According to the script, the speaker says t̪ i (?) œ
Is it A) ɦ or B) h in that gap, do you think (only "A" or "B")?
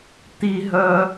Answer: A